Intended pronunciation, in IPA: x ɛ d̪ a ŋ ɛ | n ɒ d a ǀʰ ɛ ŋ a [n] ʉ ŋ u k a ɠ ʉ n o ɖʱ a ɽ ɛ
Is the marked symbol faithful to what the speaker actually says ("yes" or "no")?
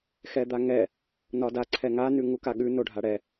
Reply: yes